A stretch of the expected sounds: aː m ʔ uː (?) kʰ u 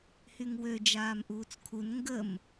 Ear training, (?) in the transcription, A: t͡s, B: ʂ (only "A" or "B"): A